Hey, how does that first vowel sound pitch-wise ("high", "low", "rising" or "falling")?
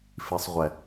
low